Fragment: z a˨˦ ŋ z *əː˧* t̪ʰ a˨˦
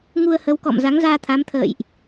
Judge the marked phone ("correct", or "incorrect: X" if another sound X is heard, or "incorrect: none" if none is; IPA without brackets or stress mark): incorrect: aː˧